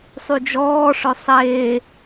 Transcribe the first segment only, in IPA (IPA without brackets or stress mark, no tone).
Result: sˤ